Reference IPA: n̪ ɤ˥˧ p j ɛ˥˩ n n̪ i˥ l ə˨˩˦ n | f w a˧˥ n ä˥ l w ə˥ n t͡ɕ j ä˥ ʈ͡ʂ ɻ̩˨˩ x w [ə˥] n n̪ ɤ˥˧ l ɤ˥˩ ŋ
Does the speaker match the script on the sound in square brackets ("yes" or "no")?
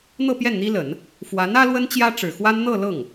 no